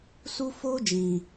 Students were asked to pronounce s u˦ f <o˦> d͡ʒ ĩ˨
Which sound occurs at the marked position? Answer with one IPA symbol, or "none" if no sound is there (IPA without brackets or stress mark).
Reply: o˦